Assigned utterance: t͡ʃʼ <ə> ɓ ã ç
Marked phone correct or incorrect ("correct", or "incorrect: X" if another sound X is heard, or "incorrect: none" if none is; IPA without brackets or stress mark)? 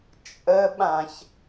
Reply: correct